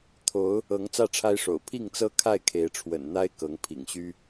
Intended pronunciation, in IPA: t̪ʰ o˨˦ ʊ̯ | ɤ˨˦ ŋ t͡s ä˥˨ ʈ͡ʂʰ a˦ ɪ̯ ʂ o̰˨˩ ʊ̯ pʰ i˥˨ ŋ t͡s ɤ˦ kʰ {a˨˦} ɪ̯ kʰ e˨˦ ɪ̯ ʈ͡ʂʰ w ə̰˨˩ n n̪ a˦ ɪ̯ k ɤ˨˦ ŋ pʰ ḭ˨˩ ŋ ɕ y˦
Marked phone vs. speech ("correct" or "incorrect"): incorrect